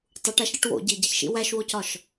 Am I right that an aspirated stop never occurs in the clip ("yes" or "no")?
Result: yes